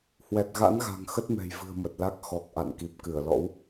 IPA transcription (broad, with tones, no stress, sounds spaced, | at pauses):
h w ɛ˨˩ t̚ ɣ a̰˧˥ n ɣ a̤˨˩ ŋ x ə˦˥ t̚ m ɛ̤˨˩ j v ɨ̤˨˩ ə̯ m ə˨˩ t̚ l a˦˥ k̚ x ɔ˨˩ k̚ ʔ a̰˧˨ n k i˨˩ p̚ k ɨ˧˩ ə̯ l ɔ̰˧˥ w